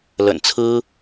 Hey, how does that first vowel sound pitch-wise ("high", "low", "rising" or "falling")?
low